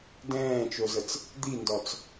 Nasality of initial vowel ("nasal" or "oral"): nasal